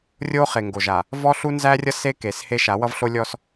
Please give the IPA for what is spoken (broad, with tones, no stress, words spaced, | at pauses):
rʲo˦ χe˨ŋɡo˨ʒa˨ | vɔ˦ɬu˦nzæ˦rʲʌ˦ se˦ ke˨˦she˦ ʃa˨˦wʌ˦vɬo˦lʲɔ˦s